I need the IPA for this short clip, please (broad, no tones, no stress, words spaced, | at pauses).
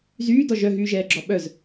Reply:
zyːdɔ ʒœɦyːʒɛːɡ͡ǁɔ ɓœz